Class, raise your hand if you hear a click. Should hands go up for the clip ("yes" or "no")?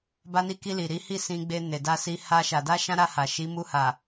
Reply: no